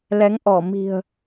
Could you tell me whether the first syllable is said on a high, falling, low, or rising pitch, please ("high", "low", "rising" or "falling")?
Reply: rising